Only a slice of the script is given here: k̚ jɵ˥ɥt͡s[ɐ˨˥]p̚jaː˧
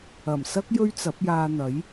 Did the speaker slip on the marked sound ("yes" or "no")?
no